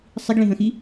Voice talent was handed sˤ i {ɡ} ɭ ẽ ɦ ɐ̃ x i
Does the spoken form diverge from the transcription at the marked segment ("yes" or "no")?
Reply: no